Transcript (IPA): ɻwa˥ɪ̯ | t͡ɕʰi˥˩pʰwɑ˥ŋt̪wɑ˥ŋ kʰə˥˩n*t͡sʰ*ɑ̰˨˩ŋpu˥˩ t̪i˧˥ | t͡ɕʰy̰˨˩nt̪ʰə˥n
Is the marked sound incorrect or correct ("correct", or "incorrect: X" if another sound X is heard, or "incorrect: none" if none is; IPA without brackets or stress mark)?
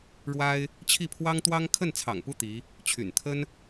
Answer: correct